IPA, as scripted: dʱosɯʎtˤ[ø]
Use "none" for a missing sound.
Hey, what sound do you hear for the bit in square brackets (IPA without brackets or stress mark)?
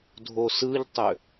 ø